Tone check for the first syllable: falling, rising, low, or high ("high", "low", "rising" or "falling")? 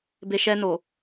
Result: low